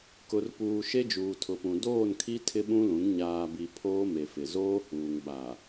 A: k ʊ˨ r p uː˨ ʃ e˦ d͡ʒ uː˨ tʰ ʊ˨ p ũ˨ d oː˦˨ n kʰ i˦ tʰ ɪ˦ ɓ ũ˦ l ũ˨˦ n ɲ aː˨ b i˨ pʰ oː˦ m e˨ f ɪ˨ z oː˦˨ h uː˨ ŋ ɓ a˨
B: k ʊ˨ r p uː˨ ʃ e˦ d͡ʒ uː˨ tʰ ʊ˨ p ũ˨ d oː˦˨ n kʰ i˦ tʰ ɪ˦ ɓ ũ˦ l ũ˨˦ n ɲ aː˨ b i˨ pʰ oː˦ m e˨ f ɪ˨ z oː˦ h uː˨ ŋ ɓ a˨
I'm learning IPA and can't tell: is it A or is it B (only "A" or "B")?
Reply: B